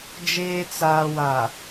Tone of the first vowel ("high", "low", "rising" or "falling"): low